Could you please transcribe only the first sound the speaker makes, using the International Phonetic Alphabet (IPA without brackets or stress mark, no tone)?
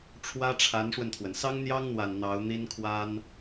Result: ʈ͡ʂʰ